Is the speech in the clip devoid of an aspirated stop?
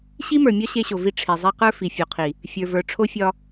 no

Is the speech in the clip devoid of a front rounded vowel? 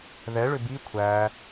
no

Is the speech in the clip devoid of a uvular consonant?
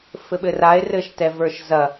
yes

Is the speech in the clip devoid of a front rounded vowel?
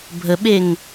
yes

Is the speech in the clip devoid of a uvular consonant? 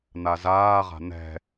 no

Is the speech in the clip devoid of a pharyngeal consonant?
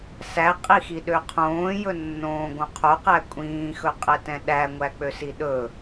yes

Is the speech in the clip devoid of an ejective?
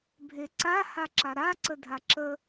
yes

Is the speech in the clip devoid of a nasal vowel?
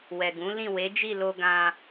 no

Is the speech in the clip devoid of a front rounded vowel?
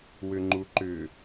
no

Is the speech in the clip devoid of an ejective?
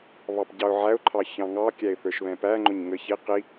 yes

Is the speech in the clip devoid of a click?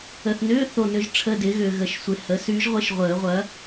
yes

